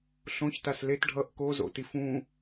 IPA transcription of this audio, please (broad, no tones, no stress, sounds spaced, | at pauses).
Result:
ɬ õ ç t a s l e t ɖʱ ʌ ʔ k o z o̰ t i f ũ